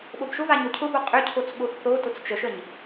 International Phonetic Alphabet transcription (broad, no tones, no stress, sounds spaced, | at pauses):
ɓ o b ʃ ʊ v a ɲ o cʰ ʊ b o qʼ ʏ cʰ o t͡s ɓ ʊ x θ o t ʊ t͡s t͡ʃ ə ʃ ə ɲ